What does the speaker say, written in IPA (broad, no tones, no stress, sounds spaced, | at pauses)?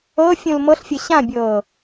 ɤ fʲ ũ l m ɤ ɬ fʲ ɤ ɕ ã bʲ ɤː